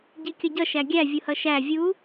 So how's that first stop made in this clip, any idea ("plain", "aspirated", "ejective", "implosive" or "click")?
plain